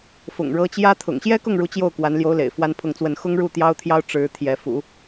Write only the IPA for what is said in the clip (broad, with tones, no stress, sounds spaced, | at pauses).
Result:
f ʊ̰˨˩ ŋ ɻ ɤ˧˥ t͡ɕ j ä˥ t̪ʰ ʊ̰˨˩ ŋ ɕ j ɛ˥ k ʊ˥˩ ŋ ɻ u˧˥ t͡ɕ j o˥˩ ʊ̯ k w a˧˥ n l j o˧˥ ʊ̯ l ḛ˨˩ ɪ̯ f w a˥ n pʰ ʊ˥˧ ŋ t͡s w ə˥˩ n x ʊ˥ ŋ ɻ u˥˩ t̪ j ɑ˥ ʊ̯ t̪ʰ j ɑ˥ ʊ̯ ʈ͡ʂ ɻ̩˧˥ t̪ʰ j ɛ˧˥ f ṵ˨˩˦